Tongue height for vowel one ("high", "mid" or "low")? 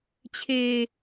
mid